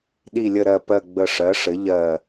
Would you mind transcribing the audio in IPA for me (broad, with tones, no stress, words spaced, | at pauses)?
ɗi˨˩lʲə˨˩ ɾɜ˨˩pɜ˨˩ ɡ͡bə˨˩ʂɜ˩˧ʂɘ˩˧ ʎɜ˨˩